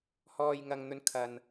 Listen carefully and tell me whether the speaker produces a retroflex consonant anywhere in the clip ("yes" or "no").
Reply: no